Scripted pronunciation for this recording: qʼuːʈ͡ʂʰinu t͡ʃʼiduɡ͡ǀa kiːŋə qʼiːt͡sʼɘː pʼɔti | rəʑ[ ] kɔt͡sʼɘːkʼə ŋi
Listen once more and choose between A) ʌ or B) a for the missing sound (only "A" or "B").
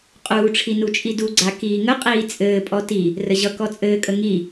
A